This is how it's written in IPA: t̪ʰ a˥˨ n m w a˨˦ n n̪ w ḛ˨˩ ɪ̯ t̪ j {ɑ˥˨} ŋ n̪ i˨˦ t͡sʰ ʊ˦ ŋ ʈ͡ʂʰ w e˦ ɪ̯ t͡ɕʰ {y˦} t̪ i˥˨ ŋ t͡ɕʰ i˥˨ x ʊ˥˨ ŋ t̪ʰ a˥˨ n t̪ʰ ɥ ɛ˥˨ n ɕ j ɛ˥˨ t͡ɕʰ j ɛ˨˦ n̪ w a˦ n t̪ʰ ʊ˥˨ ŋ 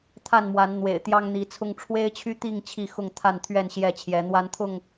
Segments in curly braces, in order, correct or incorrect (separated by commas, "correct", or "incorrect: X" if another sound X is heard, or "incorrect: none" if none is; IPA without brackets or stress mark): incorrect: ɑ˦, correct